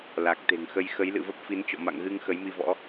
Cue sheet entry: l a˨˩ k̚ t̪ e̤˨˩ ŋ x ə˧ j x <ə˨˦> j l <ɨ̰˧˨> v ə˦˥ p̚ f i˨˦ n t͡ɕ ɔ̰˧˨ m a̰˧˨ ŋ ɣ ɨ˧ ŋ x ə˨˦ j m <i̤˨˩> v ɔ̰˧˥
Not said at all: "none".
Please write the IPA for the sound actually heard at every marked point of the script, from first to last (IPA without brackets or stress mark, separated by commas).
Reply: ə˨˦, ɨ̰˧˨, i˧